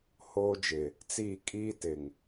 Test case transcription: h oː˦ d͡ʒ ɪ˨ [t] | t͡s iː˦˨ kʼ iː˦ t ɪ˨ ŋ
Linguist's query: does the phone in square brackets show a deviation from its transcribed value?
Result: yes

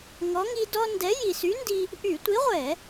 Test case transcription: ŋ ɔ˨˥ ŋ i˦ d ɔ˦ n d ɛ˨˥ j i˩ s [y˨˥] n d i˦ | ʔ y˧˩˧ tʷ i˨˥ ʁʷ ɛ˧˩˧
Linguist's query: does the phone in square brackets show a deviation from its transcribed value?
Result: no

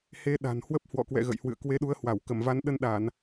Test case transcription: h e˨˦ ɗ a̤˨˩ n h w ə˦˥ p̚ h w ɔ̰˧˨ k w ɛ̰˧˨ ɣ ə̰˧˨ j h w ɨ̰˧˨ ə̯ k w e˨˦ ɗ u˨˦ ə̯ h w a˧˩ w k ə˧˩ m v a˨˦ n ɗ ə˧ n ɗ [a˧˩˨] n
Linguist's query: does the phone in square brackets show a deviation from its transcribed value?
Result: no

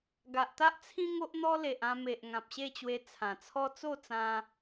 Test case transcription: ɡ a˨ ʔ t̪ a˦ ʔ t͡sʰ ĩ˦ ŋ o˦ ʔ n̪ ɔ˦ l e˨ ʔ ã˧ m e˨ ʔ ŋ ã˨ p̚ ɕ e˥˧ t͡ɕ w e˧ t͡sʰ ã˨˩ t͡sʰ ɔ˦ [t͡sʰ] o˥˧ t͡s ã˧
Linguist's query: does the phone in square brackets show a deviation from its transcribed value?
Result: yes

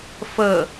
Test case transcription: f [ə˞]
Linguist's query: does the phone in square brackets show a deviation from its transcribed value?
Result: yes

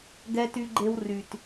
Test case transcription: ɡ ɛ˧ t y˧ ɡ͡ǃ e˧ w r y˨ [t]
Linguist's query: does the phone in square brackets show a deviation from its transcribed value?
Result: no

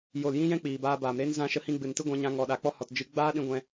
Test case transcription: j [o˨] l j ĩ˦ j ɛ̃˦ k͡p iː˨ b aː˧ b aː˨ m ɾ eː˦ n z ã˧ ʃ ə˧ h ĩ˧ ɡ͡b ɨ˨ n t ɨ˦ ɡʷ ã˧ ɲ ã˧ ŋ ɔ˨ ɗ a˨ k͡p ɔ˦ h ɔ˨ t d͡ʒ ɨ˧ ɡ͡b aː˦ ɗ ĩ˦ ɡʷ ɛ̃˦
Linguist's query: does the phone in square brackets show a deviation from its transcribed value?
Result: no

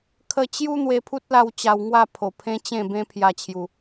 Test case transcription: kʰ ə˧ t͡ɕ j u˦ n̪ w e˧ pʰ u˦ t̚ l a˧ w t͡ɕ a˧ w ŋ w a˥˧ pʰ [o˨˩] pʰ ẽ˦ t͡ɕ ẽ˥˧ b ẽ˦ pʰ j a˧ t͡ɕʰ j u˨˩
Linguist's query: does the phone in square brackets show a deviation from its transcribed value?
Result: no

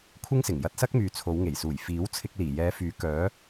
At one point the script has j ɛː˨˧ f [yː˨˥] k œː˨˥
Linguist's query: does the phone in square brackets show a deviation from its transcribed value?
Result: no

